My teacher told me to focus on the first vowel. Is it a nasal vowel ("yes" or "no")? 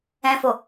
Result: yes